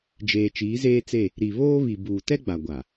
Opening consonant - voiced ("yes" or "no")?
yes